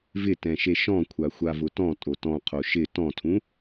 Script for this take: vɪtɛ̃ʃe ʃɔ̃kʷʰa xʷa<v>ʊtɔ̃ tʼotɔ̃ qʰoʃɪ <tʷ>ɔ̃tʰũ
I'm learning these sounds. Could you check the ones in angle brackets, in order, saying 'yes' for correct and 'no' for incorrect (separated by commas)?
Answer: yes, no